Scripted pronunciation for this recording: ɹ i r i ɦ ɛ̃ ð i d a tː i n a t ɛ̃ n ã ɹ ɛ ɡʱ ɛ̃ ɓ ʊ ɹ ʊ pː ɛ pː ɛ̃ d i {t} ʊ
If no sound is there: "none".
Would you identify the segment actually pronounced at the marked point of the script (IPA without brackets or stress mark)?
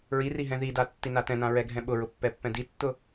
tː